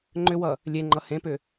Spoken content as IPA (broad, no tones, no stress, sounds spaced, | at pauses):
ŋ͡ǃ ʏ w ʌ | lʲ e ŋ͡ǃ ʌ h ẽ p ʏ